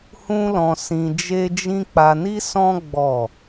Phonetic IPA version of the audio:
hũ˦lɔ̃˧sĩ˧ d͡ʒe˦d͡ʒĩ˦ k͡pa˧ni˦sɔ̃˦ ɡ͡bɔ˦˨

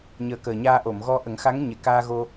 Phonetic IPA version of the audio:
ɲəː˨˩ kəː˨˩ɲaː˧ʔo˨˩˨mɣɔ˧ ʔə˨˩˦ŋxa˧˥ŋɲe˨˩ kaː˧ɣo˧

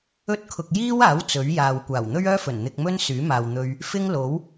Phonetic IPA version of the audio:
ɵ˥t̚kʰʊ˧k̚ jiː˥waː˨˥w t͡sɵ˨˥ɥjaː˨w kʷaː˨˩wn̪ɵ˥ɥœː˥fɵ˨˩n n̪ɪ˧k̚mɵ˥n syː˨˥maː˨wn̪ɵ˧ɥ | fɪ˥ŋ lo˨˥w

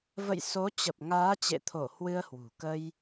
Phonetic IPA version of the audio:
və̰˧˨jso˨˦t͡ɕə˨˩p̚ ŋaː˨˦t͡ɕḛ˧˨t̪ʰo˧˩ hwɨ˧ə̯hwṳ˨˩ kə˧j

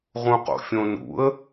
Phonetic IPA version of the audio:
ʁũqo̰fʲõnṵə̯

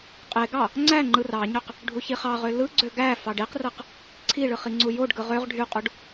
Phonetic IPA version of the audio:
qʼeɡɑ | ŋ͡ǀæ ŋ͡ǃɯrɑɲøq | ɖʱuçiχɑʁø lɯɡ͡ǀø ɡæ fɑɖiqrɯq | ǀʰiɭɯχ iŋ͡ǀujoɖɡɯ ʁøʁ ɖʱyqʼuɖ

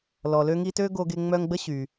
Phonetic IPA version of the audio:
lɔ˨lø˦ŋi˦tø˥ ɡo˦ɡe˦ŋ͡mœ˦ŋɡ͡bə˥ ɕy˩

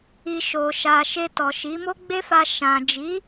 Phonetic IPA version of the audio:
i˧ ʃo˨ʃa˨ ʃe˧tɔ˨ʃi˨˦ mo˦ɡ͡be˦fa˧ ʃã˨d͡ʒi˨˦

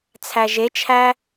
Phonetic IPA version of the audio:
t͡sʰæʒet͡ʃʰæ

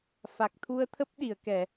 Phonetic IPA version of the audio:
fa˨˩k̚ t̪ʰu˧ə̯t̪ʰə˦˥p̚ɗi˧˩ə̯ kɛ˧˩˨

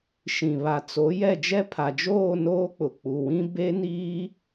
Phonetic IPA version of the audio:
ʃĩ˨βa˨t͡so˨˦jɛ˦˨ d͡ʒɛ˦pʰa˨d͡ʒoː˦˨ noː˦k͡pʊ˨ k͡pu˨wĩ˦ be˦niː˦

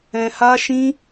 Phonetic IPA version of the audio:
ɛ̃˧ha˦ʃĩ˦

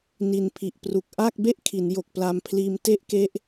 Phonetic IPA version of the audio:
ni˨˩npʰi˨˩ʔpru˨˩k̚ʔa˥˩k̚ be˥˩ʔkʰi˩˦njo˨˩k̚ pla˧mpʰliː˧m te˥˩ʔke˦˥ʔ

